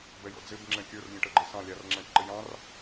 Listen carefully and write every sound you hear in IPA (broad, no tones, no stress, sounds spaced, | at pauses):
b ɛ j ɔ̰ d͡z ɪ b ŋ͡ǁ ɛ̃ kʲ ə˞ r lʲ ə̃ ʈ ə ɡ͡ǃ ɪ s ɑ̃ lʲ ɑ r ŋ͡ǁ æ̃ ʈ ǃ ɪ j ɑ̃ r